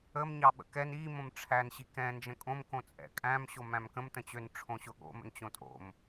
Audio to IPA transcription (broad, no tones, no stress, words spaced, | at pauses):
əm ɲɑɓə̰kɛn i mõmʈ͡ʂʰæn ɕikɛ̃ nd͡ʒə̃kʼõm kõt͡sʼɛ̰kʼæ̃m ɕomæ̃mkə̃m tə̃t͡ɕøn ʈ͡ʂʰõɕʊɠo̰ mə̰nt͡ɕõtʼo̰m